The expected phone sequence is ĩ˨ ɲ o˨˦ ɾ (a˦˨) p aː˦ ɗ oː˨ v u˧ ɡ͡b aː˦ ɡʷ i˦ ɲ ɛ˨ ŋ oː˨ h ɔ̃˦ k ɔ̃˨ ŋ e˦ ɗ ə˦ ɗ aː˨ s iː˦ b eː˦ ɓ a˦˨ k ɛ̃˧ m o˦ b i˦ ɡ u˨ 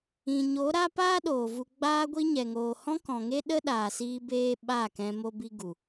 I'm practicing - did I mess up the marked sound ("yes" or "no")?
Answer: yes